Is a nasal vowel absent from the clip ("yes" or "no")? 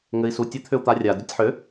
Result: yes